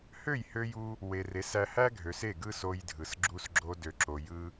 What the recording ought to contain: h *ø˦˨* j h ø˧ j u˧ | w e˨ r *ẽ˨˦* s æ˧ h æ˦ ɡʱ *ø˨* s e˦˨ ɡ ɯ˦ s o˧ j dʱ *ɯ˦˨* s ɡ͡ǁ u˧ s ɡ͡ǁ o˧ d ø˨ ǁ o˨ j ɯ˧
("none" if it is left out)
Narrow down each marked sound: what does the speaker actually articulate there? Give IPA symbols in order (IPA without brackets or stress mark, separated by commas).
ø˦˨, e˨˦, ø˨, ɯ˨